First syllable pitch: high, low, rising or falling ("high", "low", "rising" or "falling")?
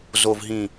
low